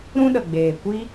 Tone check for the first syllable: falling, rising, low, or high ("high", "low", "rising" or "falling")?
high